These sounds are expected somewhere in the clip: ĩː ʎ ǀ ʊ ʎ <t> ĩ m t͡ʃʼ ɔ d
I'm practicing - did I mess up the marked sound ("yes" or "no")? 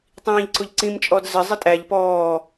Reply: yes